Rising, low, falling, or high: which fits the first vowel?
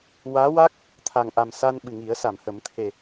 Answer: rising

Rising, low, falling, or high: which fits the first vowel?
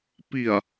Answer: low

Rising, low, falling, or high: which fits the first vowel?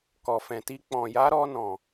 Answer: low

